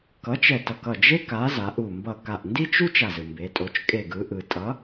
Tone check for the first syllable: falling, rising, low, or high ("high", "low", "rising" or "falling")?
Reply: rising